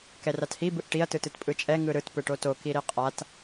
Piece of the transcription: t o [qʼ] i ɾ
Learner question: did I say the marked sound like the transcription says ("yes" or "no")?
no